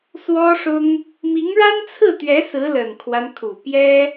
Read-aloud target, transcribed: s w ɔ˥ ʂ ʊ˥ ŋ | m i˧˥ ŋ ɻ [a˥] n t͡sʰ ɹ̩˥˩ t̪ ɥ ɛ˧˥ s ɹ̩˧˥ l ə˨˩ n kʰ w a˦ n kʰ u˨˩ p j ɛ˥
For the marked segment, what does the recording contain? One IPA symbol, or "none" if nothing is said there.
a˥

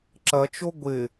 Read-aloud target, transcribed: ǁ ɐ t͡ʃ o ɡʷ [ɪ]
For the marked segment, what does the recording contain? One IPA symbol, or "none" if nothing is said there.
ɪ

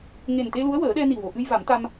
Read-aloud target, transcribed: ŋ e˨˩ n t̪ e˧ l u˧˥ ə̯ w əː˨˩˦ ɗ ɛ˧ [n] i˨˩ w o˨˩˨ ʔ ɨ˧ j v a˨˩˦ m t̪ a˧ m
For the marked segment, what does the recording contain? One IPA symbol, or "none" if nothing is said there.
n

